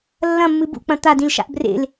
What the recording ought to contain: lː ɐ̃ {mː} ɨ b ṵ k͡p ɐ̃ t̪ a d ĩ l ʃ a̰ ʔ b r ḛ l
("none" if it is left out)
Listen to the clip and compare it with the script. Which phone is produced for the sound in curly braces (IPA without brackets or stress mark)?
mː